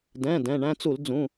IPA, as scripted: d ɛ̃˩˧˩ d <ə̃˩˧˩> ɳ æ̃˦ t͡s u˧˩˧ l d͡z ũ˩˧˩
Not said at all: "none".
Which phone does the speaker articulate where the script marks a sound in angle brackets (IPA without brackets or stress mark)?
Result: ɛ̃˩˧˩